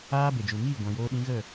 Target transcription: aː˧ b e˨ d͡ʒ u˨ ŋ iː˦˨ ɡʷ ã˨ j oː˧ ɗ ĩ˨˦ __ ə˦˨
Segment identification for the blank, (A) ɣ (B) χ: A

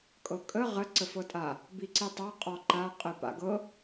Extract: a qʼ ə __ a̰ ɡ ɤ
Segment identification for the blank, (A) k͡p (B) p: B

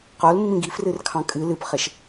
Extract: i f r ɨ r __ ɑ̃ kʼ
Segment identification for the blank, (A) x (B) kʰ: B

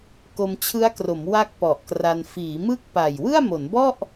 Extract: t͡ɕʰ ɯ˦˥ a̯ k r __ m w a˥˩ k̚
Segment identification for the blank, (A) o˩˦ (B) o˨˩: A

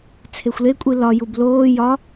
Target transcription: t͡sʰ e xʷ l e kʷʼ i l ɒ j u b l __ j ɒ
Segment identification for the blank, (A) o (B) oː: B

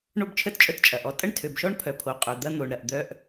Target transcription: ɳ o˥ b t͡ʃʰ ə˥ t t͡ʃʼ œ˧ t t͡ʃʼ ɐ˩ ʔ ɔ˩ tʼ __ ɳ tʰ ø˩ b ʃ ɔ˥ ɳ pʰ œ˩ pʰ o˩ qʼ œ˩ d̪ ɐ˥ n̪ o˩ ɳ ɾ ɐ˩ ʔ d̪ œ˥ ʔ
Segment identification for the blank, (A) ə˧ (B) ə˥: B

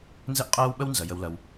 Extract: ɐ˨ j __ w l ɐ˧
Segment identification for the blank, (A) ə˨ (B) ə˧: B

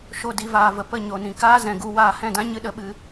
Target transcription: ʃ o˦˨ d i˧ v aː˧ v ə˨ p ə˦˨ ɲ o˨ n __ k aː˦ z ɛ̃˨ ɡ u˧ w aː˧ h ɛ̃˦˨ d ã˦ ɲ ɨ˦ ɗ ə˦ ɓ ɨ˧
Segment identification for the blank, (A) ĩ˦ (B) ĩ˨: B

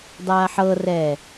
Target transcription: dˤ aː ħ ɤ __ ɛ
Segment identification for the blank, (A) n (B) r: B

